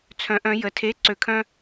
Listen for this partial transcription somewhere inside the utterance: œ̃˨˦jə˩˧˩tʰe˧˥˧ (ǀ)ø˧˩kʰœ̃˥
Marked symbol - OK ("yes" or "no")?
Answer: yes